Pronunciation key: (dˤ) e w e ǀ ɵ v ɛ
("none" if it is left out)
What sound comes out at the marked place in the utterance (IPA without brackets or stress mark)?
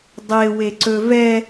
dˤ